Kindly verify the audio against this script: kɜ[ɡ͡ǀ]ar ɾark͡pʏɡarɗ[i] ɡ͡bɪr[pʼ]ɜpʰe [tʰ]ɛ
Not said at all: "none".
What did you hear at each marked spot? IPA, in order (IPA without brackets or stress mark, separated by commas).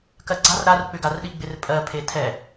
ɡ͡ǀ, i, pʼ, tʰ